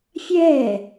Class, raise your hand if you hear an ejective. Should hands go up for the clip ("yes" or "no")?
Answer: no